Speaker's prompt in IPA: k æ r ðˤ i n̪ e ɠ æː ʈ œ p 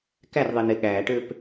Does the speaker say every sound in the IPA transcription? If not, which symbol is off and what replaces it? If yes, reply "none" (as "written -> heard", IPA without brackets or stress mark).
œ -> ø